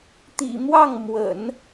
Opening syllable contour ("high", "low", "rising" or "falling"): low